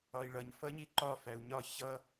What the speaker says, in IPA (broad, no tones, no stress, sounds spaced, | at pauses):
ɒ i̯ ɭ ʌ ɲ f ʌ ɲ i ǃ ɒ f æ u̯ ɲ ɒ ç ʌ